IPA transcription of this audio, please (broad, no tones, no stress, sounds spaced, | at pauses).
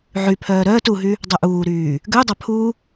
ʕ y pʰ œː ɾ œː t u ɦ y | dˤ œ ʔ uː ɾ yː | ɡ ø dˤ a pʰ u